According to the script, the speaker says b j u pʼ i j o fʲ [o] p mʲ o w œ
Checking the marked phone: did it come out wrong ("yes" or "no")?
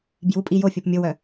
no